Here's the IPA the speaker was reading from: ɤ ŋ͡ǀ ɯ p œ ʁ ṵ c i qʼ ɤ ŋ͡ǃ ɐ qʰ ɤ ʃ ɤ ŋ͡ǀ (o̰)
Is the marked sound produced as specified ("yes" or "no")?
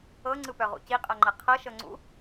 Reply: no